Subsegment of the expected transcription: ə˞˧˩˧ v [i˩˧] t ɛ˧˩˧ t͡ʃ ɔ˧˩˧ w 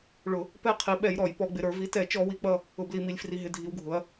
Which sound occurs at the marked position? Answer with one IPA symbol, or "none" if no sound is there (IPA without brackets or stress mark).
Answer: i˩˧